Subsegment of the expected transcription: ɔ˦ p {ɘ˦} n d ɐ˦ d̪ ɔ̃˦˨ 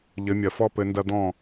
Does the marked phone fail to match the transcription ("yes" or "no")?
yes